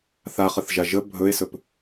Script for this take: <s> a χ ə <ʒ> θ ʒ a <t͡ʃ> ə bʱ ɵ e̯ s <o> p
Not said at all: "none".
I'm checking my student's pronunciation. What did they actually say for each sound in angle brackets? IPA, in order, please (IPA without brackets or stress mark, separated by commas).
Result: θ, none, ʒ, ɵ